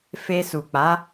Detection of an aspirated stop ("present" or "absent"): absent